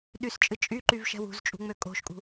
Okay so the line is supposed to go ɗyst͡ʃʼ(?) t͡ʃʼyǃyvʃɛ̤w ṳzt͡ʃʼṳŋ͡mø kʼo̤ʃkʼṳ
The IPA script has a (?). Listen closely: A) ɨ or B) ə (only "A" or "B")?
A